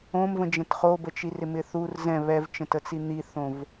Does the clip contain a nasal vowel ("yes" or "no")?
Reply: yes